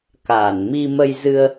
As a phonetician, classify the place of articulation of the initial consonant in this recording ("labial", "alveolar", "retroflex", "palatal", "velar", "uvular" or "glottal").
velar